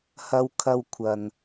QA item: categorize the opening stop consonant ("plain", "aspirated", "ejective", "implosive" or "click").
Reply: aspirated